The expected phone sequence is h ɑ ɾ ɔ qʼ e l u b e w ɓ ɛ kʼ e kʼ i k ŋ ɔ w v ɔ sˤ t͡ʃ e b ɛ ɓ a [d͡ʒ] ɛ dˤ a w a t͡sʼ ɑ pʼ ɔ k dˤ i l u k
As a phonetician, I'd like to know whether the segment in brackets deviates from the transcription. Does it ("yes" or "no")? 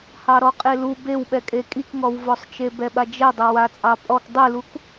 no